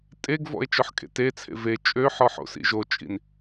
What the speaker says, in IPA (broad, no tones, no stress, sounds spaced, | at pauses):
tʼ e ɡ v ɔ̰ e̯ t͡ʃ ɔ ħ kʼ ḛ t e t͡sʰ ḛ v e t͡ʃʼ ø ħ ɔ ħ o̰ s ḭ ʒ o t͡ʃʼ ḭ n